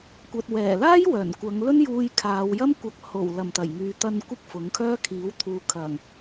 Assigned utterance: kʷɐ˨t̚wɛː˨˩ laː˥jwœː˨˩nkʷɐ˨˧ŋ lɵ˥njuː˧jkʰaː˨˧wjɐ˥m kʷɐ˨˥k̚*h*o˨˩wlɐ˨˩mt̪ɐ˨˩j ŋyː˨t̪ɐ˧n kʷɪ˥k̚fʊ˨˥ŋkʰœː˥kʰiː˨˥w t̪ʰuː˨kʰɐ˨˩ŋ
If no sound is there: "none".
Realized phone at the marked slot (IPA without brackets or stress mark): h